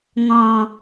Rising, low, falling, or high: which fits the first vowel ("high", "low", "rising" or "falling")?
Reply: low